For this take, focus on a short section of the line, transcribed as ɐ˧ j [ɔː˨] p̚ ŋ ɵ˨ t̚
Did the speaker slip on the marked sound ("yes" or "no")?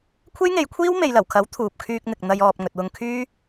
no